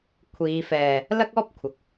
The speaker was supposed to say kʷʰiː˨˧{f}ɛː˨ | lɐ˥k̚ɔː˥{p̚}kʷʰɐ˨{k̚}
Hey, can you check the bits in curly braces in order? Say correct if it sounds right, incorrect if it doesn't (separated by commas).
correct, correct, correct